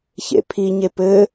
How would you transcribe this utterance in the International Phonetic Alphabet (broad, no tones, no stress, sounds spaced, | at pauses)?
ç ḛ pʰ i ɲ e p ɘ